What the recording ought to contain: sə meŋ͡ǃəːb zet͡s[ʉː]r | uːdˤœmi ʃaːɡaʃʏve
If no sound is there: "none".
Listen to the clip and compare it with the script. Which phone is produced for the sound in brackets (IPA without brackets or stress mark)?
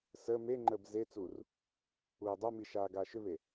uː